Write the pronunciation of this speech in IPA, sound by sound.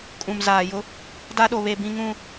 kʼũ˨m zaː˨jʊ˦ | da˦ɗo˨ βe˨bĩ˨ŋũ˨

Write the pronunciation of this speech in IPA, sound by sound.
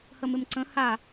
həmɪmǀə̃ ha

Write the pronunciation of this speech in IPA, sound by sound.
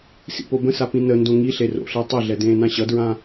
sḭpobə̃sa pĩnəndõ ŋi ɬero̰ɬəː tˤøɮɛ dẽːnãɕʌdɹã

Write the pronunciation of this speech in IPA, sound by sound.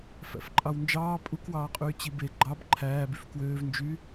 fæ̰fǃʼɑwnd͡ʒɑː pʼukwɑːqʼyː t͡ɕibe ɡ͡ǃɑb ǃʰæːbyf kwøːvnd͡ʒy

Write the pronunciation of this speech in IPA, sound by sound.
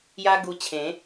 ja˦ɡu˧t͡ɕʰẽ˨˦

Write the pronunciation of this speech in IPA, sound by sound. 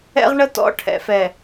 ɛ̰˦ʁɳə˦tɔ̰˦ ʈʰɛ̰˨fɛ˨

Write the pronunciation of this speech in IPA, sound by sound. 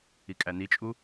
ikʼænit͡ʃʼu

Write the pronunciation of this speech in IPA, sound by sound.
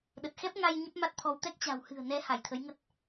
ɗə˨˩t̚xɛ˦˥p̚ ŋa˧j ɲə˦˥p̚ma˦˥t̚t̪ʰɔ˧w t̪ɛ˦˥k̚t͡ɕa̤˨˩whɨ̤˨˩ə̯ nɛ˨˦ ha˧˩jt̪ʰə˨˦jŋə˦˥t̚

